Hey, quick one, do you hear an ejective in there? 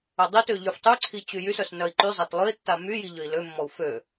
no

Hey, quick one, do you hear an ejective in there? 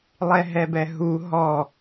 no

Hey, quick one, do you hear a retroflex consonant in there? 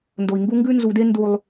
no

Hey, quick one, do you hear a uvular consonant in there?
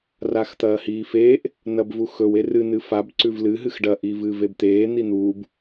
no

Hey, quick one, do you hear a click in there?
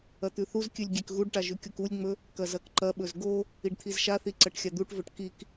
yes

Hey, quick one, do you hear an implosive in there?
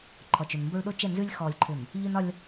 yes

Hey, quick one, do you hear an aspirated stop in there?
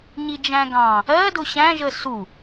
no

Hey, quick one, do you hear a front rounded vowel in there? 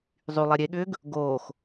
yes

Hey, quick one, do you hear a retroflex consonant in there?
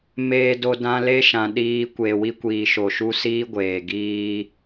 no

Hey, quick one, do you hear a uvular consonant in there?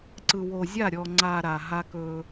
no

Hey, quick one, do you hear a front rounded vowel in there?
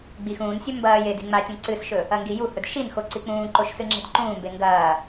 no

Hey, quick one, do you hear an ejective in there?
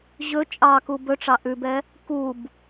yes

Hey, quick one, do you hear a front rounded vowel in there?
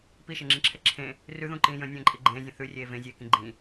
no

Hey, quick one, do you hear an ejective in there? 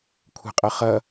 yes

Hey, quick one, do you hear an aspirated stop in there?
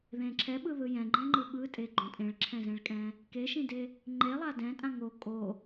yes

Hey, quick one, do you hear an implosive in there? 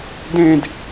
no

